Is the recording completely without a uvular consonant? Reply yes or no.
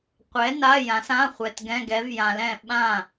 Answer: no